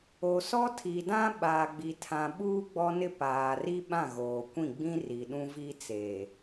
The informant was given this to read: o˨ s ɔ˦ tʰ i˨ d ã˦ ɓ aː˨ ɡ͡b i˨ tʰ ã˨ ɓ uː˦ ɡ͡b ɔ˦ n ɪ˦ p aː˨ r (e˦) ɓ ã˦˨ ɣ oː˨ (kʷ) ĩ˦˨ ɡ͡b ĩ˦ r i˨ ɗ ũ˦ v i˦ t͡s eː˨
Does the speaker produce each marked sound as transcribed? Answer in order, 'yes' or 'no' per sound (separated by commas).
no, yes